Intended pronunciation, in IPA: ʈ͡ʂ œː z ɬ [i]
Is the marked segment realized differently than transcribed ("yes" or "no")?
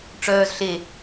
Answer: yes